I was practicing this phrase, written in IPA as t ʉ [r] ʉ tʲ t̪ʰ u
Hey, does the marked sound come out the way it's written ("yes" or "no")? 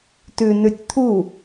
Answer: no